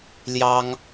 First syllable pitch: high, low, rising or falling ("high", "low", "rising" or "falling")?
high